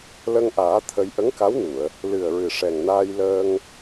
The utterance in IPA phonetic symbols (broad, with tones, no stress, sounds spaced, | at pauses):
l ə˧ ŋ ʔ aː˨˩˦ t̪ʰ ə˧ j ʔ ə˧˥ ŋ k a˧˥ w n u˨˩˨ ə̯ | l ɨ˨˩ ə̯ ɹ ɨ˨˩ ʂ ɛ˨˩ ŋ n aː˧ j l əː˧ ŋ